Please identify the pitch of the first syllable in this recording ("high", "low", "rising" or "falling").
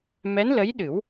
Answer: rising